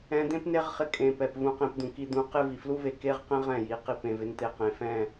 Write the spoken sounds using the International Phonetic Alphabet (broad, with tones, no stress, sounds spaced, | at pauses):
ɛ̃˧ d̪ ẽ˦ p n e˦ ʁ χ ɪ˧ kʼ ẽ˧ p ɛ˨ p v ũ˧ q ẽ˧ p d̪ ũ˨ k i˧ d̪ ũ˧ q ɪ˦ v i˨ f l u˦ v e˧ k e˦ ʁ q ẽ˦ ʁ ɛ̃˦˨ j i˨˦ q i˧ p ẽ˧ v ɪ˦ n t̪ e˧ q ẽ˨ f ɛ̃˦˨